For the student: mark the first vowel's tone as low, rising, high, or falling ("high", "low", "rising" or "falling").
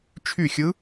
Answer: falling